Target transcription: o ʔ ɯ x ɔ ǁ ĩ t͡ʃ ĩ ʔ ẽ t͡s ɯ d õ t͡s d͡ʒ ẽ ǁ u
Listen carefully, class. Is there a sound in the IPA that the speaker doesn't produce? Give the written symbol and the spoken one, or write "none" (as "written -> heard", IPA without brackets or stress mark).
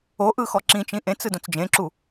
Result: none